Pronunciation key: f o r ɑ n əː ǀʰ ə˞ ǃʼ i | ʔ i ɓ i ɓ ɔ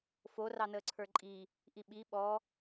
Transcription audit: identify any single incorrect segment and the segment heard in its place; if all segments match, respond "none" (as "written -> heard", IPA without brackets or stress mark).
none